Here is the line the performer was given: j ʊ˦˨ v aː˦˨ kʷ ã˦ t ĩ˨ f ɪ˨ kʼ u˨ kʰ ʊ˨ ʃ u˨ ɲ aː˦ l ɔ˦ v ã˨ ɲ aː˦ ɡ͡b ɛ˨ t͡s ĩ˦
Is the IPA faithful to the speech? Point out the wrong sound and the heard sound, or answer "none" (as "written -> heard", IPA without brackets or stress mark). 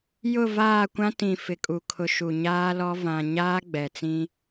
none